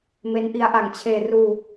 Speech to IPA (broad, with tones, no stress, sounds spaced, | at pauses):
m e˦˥ n ʔ i˦˥ a̯ ʔ a˨˩ ŋ t͡ɕʰ eː˧ r uː˧